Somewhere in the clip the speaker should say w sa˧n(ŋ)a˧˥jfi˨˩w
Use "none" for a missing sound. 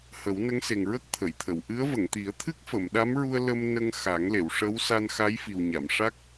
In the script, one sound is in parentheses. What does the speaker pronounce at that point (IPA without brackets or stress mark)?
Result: x